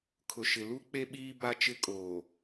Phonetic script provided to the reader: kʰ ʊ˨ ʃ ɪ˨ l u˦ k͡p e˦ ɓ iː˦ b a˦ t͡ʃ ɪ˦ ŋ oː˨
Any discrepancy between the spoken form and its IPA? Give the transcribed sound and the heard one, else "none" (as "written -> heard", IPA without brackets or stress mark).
ŋ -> kʼ